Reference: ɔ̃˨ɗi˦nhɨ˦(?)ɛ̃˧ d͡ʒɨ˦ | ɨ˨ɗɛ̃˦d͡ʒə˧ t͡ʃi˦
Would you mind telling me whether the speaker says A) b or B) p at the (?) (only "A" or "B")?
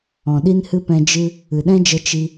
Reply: B